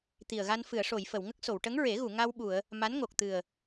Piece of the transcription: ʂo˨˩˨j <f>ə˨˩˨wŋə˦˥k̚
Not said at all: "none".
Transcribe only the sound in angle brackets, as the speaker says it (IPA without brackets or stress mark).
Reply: f